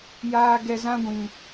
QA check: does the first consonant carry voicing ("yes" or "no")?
yes